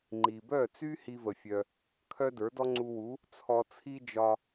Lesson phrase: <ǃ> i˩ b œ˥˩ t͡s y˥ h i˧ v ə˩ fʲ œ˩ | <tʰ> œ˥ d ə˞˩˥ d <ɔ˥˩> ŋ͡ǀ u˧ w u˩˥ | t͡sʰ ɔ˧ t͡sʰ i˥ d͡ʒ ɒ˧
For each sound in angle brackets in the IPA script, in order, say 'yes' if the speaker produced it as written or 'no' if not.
no, no, no

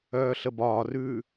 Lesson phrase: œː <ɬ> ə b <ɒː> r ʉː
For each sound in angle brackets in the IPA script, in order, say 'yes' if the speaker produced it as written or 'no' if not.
yes, yes

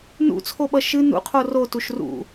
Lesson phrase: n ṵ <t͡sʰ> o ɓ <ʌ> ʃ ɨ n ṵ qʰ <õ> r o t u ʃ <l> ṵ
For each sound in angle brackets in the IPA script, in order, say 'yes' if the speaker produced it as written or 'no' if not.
yes, yes, no, no

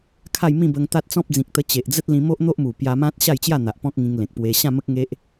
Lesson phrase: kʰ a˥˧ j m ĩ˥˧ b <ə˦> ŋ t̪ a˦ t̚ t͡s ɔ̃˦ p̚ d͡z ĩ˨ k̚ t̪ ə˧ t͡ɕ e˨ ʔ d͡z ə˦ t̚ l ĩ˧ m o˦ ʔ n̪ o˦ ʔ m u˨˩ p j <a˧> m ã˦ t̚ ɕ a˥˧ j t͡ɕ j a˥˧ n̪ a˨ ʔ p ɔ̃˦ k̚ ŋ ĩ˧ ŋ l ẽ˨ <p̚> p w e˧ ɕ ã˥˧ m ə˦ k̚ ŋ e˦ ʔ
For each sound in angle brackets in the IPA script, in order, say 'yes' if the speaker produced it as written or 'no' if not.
no, yes, no

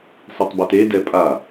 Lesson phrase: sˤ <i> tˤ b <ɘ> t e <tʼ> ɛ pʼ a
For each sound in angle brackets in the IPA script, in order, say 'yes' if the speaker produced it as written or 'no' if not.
yes, yes, no

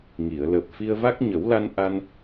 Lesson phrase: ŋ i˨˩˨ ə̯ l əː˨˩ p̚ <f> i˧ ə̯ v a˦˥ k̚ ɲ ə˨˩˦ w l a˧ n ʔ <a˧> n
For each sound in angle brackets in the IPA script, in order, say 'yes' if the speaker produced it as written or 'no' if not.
yes, yes

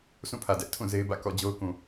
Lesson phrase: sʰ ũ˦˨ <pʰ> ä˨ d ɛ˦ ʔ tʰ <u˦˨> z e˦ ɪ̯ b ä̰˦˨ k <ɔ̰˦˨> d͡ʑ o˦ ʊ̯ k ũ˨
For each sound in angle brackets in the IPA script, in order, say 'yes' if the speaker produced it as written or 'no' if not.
yes, no, yes

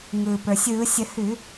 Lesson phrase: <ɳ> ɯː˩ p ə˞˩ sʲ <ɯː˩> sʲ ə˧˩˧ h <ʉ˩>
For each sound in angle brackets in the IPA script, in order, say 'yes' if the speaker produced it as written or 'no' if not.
no, no, no

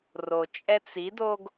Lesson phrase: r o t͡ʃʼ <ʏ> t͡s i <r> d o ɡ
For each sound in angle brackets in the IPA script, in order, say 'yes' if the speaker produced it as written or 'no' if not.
no, no

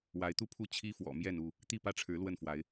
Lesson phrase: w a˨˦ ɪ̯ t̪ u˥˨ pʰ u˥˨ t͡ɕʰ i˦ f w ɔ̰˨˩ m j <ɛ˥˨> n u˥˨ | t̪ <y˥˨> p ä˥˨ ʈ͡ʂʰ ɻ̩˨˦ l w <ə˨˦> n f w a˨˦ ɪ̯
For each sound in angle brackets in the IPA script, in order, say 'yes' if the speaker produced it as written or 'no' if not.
yes, no, no

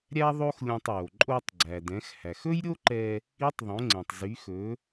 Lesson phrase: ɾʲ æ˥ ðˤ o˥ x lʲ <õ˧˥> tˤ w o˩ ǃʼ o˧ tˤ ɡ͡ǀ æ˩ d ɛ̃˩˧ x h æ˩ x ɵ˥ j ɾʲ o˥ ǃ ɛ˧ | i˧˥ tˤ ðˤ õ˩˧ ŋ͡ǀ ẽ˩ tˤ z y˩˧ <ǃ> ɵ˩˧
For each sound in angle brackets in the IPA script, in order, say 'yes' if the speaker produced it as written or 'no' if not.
no, no

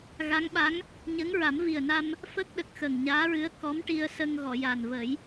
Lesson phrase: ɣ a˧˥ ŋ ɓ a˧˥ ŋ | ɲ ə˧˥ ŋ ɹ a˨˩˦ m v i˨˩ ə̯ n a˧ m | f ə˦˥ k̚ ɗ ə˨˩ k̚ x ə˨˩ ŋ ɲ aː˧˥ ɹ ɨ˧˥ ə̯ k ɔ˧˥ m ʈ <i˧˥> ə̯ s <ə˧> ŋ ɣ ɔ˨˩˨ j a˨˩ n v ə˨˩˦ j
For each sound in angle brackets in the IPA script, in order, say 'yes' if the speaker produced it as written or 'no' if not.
no, yes

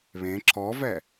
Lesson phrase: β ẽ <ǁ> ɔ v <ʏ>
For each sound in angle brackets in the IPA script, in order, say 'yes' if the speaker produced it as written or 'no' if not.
yes, no

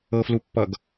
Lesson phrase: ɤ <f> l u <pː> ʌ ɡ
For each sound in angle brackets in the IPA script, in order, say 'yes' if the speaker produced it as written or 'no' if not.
yes, yes

